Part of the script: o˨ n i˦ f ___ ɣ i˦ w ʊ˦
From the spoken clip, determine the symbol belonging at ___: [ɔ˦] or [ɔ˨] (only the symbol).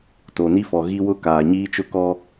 ɔ˨